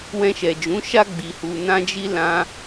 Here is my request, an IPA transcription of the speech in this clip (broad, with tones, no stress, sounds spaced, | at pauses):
w ɛ̃˧ ʃ ɛ˨ d͡ʒ ũ˨˦ ʃ a˦ ɡ͡b i˧ h u˧ n ã˦ d͡ʒ i˦ l ã˧